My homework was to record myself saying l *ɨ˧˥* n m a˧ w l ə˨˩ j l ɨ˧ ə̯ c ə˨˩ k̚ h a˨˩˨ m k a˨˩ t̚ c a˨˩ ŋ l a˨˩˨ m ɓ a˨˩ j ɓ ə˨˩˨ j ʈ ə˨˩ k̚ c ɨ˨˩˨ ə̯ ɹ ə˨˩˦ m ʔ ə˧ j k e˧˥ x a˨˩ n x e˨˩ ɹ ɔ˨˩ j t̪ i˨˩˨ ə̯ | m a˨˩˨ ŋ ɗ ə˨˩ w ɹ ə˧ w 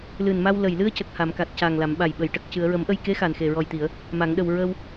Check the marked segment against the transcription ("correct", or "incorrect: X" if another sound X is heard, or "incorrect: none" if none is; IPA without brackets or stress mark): incorrect: ɨ˨˩